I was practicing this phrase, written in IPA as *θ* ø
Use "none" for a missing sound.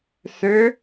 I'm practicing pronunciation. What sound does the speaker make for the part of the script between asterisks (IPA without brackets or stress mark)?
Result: θ